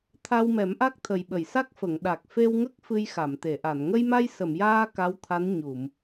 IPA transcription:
t̪ʰa˧wmɛ˨˩˦mʔa˦˥k̚ t̪ʰə˨˩jɓə˨˩˨jsa˦˥k̚fə˨˩˨ŋ ɗa˨˩k̚ fe˧wŋə˦˥k̚ fɨ˧jxa˨˩˨mt̪e˨˩˨ʔa˨˩˨n ŋə˧jma˧j sə˨˩˨mjaː˧ ka˧˥wt̪ʰa˧˥n ɲu˨˩˨m

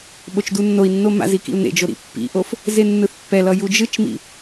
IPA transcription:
ɓot͡ʃdunːoi̯nːo ma̰zi kḭu̯n̪ḛd͡ʒo ɾḭpːḭʔof | zenːɯθpːɛlʌ jud͡ʒɯt͡ʃmḭ

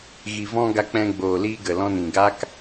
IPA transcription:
ɣi˨vɔ̃˧ ɡa˧k͡pɛ̃˧ ɡ͡boː˨liː˧ ɡə˨lɔ̃˧nĩ˨ɡa˦k

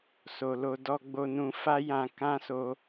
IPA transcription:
so˨lo˧ dɔ˧ɡ͡bo˧nũ˧ fa˦jã˧ kã˦so˧

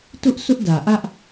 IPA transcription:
tʊ˦ʔ sʊ˦ʔdä˨ʔä˦ʔ

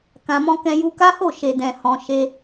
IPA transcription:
kã˧mɔ̃˦kɛ̃˦ ju˧ka˦ho˦˨ ʃe˧dɛ̃˧hɔ̃˧ ʃe˦

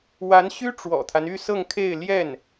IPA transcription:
wa˧˥nɕy˥ ʈ͡ʂwɔ̰˨˩t̪ʰa˦n y˥˧sɤ˥˧ŋkʰe˥˧ɪ̯ ljɛ˥˩n

